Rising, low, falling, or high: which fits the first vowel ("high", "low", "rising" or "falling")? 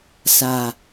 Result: low